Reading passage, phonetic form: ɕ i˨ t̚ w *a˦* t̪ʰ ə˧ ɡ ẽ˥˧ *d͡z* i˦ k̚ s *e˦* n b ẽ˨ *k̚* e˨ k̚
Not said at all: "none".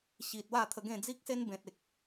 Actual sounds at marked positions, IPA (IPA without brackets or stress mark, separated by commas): a˥˧, d͡z, e˦, t̚